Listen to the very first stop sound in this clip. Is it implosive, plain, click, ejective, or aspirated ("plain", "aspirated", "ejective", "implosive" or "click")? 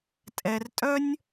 ejective